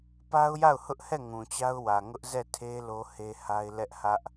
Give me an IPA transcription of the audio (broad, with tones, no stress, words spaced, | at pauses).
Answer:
pa˦ʊ̯ja˦˨ʊ̯hʊ˦ʔhɛ˦˨ ŋũ˨t͡ɕa˦ʊ̯ wä˨ŋʊ˦ʔzɛ˦˨tʰe˦ lo˦he˦ ha˦ɪ̯lɛ˦ʔhä˦ʔ